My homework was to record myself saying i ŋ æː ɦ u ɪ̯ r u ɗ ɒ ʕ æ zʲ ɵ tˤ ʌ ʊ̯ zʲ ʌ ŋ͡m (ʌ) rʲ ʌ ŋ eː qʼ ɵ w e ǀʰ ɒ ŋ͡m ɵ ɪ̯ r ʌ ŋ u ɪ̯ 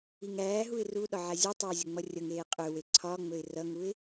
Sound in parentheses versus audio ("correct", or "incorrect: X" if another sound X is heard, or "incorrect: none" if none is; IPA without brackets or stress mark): correct